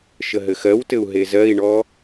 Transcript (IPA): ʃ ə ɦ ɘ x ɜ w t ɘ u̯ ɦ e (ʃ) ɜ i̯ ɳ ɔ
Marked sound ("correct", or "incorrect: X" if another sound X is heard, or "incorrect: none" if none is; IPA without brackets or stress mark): incorrect: z